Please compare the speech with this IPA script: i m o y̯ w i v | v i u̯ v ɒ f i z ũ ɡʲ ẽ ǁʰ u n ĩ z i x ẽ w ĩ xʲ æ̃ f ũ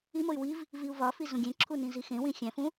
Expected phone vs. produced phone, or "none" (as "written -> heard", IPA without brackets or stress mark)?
none